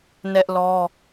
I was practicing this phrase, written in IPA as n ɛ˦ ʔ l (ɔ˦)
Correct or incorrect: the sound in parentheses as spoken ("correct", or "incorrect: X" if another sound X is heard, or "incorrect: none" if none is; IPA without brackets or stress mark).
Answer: correct